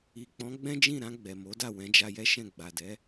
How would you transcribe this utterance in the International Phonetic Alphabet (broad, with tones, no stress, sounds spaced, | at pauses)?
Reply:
i˨ k͡p ɔ̃˨˦ ɡ͡b ɛ̃˦ d͡ʒ ĩ˦˨ ɾ ã˧ ɡ͡b ɛ˨ m o˨˦ d a˦˨ w ɛ̃˨˦ d͡ʒ a˧ j ɛ˦ ʃ ɛ̃˦˨ ɡ͡b a˨ d ɛ˨˦